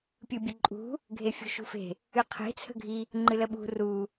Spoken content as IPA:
pʲɨbʲəǃʼṳ | ɡʱefʲṳʃṳfe̤ | ɨqʰe̤ t͡sʰə̤ɡʱi | ŋ͡ǃɨləɓṳ ru

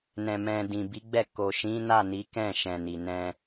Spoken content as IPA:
nɛ̃˧mɛ̃˧ dĩ˨bi˨˦ɡ͡bɛ˦˨ ko˨ʃĩ˨˦na˦˨ ni˨˦kɛ̃˦˨ ʃɛ̃˨ni˨nɛ̃˧

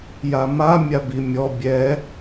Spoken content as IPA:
jama mʲabimʲɔ bʲɛ

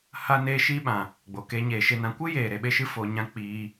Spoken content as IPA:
ha˧neː˧ʃiː˧ɓã˨ | ɡ͡bo˨keː˧ ɲeː˨ʃe˧nã˧ kʷɨ˦jeː˨ ɾe˨ɓe˧ʃɨ˧foː˨ ɲã˦ k͡piː˧

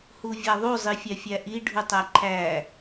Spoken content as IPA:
huvʲaðˤu zˤifʲæfʲæʔi ɖʱutˤæǃʰæ

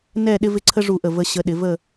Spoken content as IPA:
nɛ˥˧ ɗɪ˥vɪ˥ǀʰə˥ ʐu˧˩ʔə˧˩ və˧ɕə˧ ɗɪ˩˧və˥˧

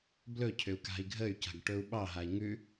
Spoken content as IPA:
blɵcʰʏu̯ ka̤i̯ɡʱəy̯ca̤ɡ ʈɵu̯ɓɑɦai̯ ŋʉ

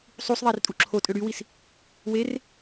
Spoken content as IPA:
sˤus ðˤærtʼuǁʰo tʼøɽywis | wer

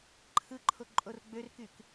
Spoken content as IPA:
ǃʰɯǃʰo ǃʼorɡ͡børkyk

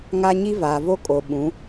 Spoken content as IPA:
ŋa˦ ɲi˦vaː˨vo˦ kʼo˨ɓũ˨˦

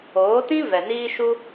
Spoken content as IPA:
oː˨˦tĩ˦ vɛ˨niː˦ʃu˦

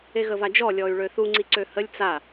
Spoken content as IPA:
eɣəvad͡ʒɔ lʲɔy̯ɭøθu ŋ͡ǀiǀøhəlʲ t͡sa

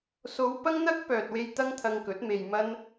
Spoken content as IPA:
so˨˧w pɐ˥ŋn̪ɐ˥k̚ pœː˨t̚we˧j t̪ɐ˥ŋt̪ʰɐ˧ŋkɵ˨˥t̚me˧j mɐ˥n

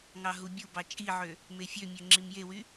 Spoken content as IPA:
ŋɑɦubʲubɑ t͡ʃʼiʕø | mefʲømʲø ŋ͡ǁimjewy

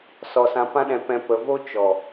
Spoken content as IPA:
sɔ˨sã˨pã˧ɗɛ̃˨ pɛ̃˨ pə˨vo˦ t͡ʃɔ˨

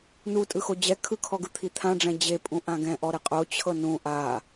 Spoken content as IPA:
nu tʼɯxod͡ʑɛ kʰɯkʰɔɡɯ t̪ʰit̪ʰãɖ͡ʐɛ̃ d͡ʑepʼũ ʔãɡɛ̃ʔɔɾe qʼot͡ɕʰɤ nũ ʔa

